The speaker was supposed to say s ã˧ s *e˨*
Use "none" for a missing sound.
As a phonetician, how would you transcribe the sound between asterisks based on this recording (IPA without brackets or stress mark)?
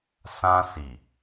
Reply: i˨